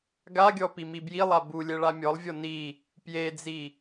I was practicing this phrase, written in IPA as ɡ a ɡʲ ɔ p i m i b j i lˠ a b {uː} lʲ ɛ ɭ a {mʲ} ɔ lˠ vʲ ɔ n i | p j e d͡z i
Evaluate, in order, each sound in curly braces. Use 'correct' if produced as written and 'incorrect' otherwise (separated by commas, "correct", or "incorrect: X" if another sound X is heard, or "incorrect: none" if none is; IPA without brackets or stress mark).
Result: incorrect: u, correct